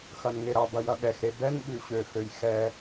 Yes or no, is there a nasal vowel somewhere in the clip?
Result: no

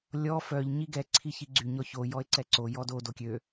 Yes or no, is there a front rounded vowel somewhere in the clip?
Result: yes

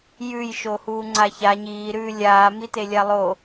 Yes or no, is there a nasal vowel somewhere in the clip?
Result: no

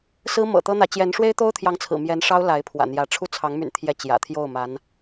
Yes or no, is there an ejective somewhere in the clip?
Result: no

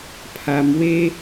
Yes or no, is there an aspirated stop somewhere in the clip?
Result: yes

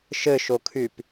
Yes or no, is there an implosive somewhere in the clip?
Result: no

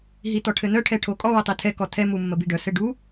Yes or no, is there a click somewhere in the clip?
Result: no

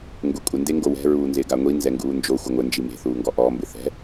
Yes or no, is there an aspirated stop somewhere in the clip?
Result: no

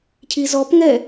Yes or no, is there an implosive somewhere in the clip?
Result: no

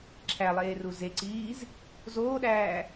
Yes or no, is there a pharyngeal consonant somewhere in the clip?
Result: no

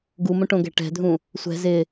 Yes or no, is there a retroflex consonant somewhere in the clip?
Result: yes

